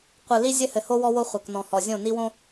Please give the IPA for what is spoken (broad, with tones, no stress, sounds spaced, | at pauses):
qʷ ɨ˨ l i˦ zʲ ɘ˦ h ɘ˨ h o˦ w ɔ˦ w o˦ χʷ ɐ˨ k n ɔ̃˨ h ɔ˨ zʲ õ˦˨ n i˦ w õ˦